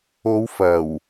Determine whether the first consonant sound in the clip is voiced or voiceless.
voiced